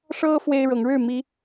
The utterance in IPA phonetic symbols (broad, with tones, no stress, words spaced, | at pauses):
ʂɤ˦ fwe˦ɪ̯ɻɤ˨˦ŋɻɻ̩˥˨mi˨˦